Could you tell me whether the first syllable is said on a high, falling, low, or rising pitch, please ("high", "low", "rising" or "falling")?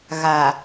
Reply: low